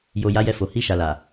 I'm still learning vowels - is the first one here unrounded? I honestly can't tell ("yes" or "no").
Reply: no